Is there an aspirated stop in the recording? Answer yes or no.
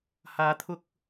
yes